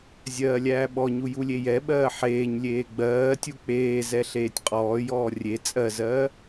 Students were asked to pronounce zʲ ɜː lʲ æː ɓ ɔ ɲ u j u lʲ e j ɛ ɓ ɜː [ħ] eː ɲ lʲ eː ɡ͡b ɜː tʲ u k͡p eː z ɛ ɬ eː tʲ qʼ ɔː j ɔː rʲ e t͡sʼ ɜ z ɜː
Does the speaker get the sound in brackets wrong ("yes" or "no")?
no